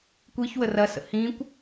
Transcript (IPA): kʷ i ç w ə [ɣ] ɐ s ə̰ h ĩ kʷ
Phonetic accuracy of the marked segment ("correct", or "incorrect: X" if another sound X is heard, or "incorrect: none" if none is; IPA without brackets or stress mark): incorrect: r